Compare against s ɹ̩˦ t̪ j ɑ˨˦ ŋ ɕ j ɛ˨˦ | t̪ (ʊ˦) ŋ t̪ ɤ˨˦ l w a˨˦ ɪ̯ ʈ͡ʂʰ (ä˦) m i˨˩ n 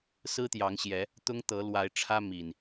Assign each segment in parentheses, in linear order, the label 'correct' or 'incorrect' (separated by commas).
correct, correct